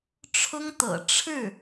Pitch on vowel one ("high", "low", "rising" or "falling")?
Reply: high